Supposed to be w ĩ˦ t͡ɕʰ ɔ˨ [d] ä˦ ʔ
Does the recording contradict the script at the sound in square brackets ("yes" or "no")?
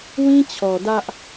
no